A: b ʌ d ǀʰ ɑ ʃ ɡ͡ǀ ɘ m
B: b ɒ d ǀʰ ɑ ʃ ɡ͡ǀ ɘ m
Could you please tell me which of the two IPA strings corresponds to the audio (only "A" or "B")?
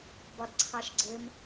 B